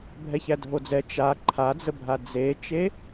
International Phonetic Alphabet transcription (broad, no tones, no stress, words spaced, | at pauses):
bʱɛçædʱod͡zɛ t͡ʃa ǃʰad͡zəbʱa d͡zet͡ʃe